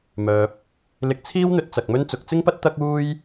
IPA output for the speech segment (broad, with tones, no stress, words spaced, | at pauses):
mœː˨p̚ | lɪ˧k̚t͡sʰiː˥wn̪ɵ˧t̚ t͡sɐ˧k̚mɵ˥n t͡sʊ˨˥k̚ t͡sɪ˥ŋpɐ˥t̚ t̪ɐ˥k̚uː˥j